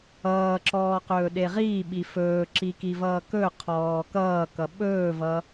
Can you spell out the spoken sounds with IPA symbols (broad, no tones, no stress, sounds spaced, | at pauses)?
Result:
ʌː ǁ ɔː q ɵː ɗ e ʁ iː ɓ i f ɵː ǁ i k i v ʌː k ɵ qʰ ɔː k ʌː k ʌ ɓ ɵː v ʌ